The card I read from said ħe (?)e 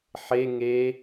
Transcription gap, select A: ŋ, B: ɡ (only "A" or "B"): A